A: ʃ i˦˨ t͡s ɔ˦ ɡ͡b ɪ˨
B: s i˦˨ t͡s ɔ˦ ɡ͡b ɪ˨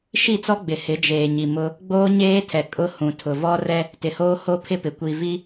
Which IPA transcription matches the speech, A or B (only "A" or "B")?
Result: A